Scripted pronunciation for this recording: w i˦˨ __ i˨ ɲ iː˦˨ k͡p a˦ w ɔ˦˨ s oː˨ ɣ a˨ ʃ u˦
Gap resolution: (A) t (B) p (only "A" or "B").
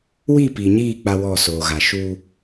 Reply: B